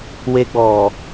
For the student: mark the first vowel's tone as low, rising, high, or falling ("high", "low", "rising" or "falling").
high